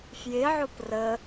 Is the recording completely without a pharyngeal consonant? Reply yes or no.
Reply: no